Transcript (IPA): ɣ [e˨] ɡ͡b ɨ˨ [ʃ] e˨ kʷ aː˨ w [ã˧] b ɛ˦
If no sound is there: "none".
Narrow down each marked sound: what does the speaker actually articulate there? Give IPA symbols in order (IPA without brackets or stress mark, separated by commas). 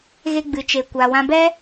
e˧, t͡ʃ, ã˧